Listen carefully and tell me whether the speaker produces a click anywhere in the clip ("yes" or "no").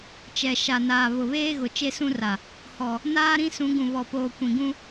no